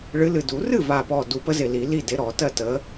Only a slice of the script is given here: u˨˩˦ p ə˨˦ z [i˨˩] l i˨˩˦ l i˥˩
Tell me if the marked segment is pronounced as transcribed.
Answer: no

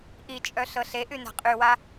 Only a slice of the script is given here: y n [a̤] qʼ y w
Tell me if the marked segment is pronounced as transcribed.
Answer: yes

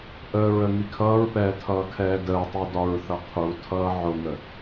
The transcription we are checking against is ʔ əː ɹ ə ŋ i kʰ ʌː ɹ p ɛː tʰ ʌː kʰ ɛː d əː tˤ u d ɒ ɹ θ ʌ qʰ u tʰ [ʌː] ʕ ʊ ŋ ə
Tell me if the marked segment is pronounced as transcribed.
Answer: yes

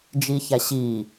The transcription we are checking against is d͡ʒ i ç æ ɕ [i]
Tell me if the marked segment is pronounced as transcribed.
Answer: no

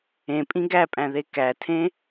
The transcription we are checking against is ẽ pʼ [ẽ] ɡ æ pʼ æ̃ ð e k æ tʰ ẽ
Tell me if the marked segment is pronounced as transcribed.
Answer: no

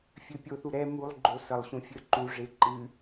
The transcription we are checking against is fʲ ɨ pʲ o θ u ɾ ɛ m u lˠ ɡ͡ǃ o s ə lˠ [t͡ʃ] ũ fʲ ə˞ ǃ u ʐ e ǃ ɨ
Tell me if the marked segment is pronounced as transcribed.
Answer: no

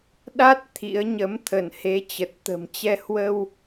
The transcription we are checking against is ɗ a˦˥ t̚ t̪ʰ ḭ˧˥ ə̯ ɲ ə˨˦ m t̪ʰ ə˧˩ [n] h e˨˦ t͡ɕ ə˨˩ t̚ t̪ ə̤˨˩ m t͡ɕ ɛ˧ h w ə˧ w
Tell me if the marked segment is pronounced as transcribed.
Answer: yes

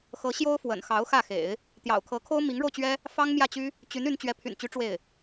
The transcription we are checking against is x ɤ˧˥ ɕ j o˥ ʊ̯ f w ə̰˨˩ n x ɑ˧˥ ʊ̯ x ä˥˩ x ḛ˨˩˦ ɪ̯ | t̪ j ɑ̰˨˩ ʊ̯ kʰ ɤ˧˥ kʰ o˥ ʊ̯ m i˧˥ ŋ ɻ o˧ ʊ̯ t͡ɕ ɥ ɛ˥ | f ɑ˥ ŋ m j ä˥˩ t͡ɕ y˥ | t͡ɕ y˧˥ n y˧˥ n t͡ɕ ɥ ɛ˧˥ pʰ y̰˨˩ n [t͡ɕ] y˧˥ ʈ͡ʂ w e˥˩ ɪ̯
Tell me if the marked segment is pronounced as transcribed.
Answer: yes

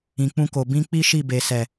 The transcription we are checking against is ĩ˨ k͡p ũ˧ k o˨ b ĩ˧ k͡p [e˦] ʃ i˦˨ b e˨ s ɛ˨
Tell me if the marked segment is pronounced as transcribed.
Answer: no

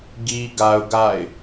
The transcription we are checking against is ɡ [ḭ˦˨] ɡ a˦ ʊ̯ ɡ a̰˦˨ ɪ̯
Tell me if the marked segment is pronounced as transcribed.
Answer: no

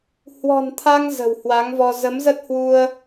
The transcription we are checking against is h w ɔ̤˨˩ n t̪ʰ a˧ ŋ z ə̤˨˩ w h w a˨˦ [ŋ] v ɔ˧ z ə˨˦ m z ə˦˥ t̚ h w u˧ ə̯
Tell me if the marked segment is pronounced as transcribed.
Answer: yes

